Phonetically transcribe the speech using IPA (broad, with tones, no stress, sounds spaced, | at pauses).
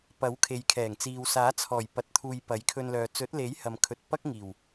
p ɐ˨˥ w kʰ e˨ j kʰ ɛː˨˩ ŋ t͡s iː˨ w s aː˨˥ t͡sʰ ɔː˨˩ j p ɐ˧ t̚ t̪ʰ uː˧ j p ɐ˨˥ j kʰ ɵ˧ n l œː˨ t͡s ɵ˨˥ t̚ l e˨˥ j h ɐ˨ m kʰ ɵ˨˥ t̚ p ɐ˥ k̚ ŋ iː˨˩ w